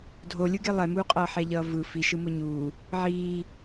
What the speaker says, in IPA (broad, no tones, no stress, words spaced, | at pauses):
dʱolʲɯɡe lˠɛmuːqʼʌː ħɛʎʌːvɯ fiʃɯ moɲuː | ʕiː